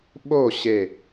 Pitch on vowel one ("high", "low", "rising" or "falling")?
falling